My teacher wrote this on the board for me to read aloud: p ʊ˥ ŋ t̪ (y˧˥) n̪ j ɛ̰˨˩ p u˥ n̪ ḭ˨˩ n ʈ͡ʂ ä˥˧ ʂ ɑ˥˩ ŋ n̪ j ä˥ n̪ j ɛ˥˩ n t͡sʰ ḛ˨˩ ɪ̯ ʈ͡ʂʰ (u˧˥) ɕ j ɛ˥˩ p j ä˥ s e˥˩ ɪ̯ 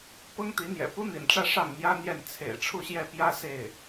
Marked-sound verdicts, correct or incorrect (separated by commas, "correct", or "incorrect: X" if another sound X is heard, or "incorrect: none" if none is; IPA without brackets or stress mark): incorrect: i˧˥, incorrect: u˥˧